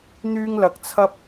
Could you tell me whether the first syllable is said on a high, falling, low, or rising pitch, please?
high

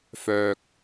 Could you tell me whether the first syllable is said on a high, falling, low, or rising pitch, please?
low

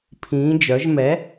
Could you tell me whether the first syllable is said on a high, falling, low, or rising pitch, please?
rising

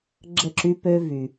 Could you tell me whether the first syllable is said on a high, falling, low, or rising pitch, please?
falling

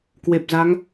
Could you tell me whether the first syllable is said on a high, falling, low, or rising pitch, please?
low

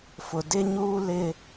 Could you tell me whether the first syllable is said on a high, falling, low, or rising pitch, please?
low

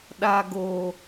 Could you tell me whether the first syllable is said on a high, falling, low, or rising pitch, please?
low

